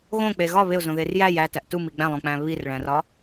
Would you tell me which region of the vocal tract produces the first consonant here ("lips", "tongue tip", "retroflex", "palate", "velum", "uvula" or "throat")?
velum